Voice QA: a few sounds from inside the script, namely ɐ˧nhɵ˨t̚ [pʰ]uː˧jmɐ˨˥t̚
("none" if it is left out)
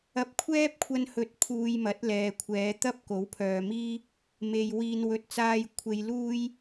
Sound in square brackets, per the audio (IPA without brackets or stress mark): pʰ